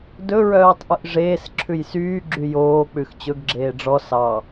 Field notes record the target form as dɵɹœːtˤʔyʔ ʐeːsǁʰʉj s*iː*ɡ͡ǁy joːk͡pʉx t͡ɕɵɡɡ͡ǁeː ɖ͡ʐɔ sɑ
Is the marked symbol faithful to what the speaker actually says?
no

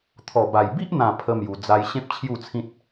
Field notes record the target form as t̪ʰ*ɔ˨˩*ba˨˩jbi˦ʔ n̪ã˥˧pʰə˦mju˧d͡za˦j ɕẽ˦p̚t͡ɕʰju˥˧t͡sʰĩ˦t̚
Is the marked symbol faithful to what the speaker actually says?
yes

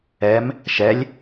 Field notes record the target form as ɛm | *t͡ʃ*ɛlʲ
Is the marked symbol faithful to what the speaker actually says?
no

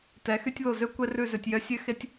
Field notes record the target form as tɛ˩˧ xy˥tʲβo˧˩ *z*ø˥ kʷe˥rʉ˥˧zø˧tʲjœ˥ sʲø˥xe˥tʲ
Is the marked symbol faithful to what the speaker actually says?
yes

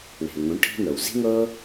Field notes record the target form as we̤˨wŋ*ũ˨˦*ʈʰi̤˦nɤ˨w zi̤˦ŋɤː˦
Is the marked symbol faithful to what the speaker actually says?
yes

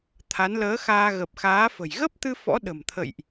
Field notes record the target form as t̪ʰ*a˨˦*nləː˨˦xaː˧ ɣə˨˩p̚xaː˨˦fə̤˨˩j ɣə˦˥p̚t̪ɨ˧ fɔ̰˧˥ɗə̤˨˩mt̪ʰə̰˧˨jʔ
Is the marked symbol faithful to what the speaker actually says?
yes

